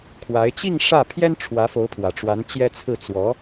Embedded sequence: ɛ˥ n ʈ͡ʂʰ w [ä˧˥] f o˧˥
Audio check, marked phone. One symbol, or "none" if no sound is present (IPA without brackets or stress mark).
ä˧˥